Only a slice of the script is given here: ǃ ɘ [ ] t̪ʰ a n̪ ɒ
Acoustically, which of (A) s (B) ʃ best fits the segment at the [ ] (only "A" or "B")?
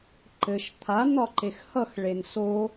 B